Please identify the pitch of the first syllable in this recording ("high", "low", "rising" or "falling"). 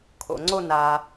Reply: low